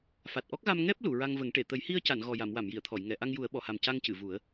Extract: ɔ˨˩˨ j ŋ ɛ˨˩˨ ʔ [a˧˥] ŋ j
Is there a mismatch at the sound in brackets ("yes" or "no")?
yes